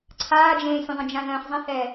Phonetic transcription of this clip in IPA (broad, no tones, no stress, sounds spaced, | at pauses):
ǀʰ aː d͡ʒ ẽː sʲ ə̃ ðˤ ə̃ d͡ʒ ã ð ə̃ː χ zˤ ɛ̃ h ɛː